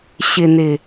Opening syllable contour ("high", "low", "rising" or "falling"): low